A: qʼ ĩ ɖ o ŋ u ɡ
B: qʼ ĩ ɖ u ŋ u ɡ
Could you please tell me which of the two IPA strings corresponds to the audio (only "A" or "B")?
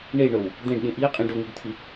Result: A